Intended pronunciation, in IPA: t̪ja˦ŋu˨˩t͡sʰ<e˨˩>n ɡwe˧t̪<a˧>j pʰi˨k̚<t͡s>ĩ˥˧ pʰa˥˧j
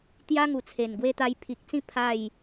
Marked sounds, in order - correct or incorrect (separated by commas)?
correct, correct, correct